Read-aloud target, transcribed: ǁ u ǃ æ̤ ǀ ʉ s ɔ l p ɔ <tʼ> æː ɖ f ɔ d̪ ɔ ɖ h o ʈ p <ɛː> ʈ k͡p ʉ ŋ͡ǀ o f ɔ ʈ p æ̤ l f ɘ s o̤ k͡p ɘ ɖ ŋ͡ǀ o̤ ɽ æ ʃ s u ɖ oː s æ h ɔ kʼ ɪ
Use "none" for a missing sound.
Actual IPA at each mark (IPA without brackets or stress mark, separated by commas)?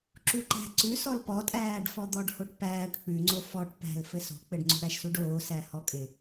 tʼ, æː